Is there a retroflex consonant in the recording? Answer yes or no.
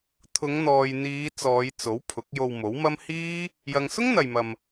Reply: no